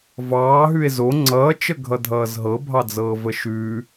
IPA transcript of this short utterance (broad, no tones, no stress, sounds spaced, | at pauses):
v ɑː ɦ ʉ e̯ z o ŋ͡ǀ ʌː t͡ʃ ə ɡʱ ʌ dʱ ʌː z ɦ ɤ bʱ ɑ d͡z ɤː v ə ʃ ʉ